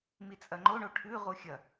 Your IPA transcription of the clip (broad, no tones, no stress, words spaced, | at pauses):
mit͡sʼɐŋ͡ǃo ɳoʈʰʉ ʁuxʲɐ